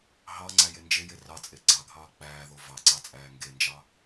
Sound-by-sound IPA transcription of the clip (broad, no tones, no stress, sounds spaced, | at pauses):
ɦ ɑ ŋ͡ǀ æ j e n d͡ʒ e j e r ɑ t͡sʼ e ɡ͡ǀ ɑ ɡʱ ɑː k͡p æː ð o v ɑ ǀ ɑ t͡sʼ æː ŋ ɡ e n d͡ʒ ɑ